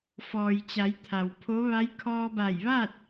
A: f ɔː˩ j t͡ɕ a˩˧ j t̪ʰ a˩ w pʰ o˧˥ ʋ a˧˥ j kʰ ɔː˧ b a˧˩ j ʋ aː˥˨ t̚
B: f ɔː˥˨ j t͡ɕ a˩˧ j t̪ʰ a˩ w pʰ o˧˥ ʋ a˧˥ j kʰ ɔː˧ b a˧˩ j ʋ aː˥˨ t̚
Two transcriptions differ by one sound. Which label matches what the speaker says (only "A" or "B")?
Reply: A